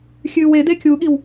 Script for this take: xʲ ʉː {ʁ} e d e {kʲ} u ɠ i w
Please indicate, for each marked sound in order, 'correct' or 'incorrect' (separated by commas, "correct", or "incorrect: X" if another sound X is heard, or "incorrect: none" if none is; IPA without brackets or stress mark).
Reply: incorrect: w, correct